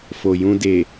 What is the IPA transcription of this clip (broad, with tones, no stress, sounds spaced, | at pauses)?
f o˨ j ũ˧ d e˨